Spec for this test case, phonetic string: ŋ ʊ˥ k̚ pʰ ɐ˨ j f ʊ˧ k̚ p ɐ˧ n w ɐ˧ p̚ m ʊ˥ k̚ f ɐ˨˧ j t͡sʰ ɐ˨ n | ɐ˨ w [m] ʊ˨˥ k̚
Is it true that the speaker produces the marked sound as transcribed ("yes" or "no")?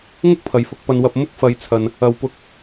no